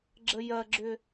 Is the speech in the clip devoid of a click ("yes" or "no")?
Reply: no